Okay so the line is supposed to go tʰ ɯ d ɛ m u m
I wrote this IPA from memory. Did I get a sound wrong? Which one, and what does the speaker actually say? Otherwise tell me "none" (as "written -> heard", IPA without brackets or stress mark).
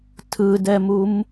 none